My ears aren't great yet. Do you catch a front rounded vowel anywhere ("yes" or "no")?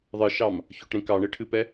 no